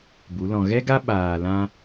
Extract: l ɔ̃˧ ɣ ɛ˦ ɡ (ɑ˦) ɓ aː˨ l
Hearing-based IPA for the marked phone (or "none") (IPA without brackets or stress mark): a˦